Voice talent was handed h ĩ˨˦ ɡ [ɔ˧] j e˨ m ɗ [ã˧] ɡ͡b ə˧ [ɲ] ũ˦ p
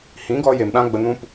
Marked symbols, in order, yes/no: yes, yes, no

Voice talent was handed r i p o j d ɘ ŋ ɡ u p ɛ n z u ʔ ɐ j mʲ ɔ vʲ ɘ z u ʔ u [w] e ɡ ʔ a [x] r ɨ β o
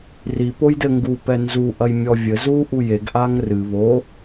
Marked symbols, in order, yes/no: no, no

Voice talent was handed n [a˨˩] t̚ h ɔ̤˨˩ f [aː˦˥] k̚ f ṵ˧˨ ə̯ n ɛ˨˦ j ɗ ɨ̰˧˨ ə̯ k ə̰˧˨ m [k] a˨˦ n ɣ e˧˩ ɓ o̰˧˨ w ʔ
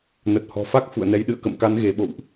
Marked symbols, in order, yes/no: no, no, yes

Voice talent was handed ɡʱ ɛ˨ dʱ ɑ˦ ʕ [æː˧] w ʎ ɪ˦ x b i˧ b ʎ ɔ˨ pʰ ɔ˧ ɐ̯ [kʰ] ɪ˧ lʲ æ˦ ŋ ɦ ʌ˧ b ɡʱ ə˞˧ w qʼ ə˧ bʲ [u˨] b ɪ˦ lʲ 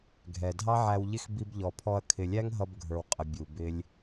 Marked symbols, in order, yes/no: no, yes, yes

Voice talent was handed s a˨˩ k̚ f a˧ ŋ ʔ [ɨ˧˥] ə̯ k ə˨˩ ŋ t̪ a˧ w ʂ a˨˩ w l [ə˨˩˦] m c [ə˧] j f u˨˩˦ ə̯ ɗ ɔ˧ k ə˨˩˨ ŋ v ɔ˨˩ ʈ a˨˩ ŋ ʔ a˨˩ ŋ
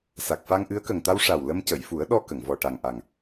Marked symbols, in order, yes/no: yes, no, no

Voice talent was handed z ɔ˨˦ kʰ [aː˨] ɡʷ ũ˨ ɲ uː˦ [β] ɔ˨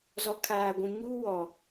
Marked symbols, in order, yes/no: yes, no

